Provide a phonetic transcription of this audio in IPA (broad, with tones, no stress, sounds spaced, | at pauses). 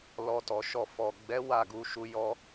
l ɔ˧ t ɔ˨ ʃ ɔ˧ f ɔ˨ ɡ͡b ɛ˨˦ w a˦˨ ɡ u˧ ʃ u˧ j ɔ˧